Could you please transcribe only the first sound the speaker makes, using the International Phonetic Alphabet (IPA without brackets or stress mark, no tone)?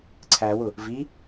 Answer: ǀʰ